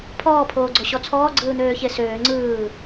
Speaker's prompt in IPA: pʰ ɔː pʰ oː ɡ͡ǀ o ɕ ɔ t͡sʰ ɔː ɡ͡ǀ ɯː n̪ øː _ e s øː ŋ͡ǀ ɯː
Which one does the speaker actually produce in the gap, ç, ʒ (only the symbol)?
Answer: ç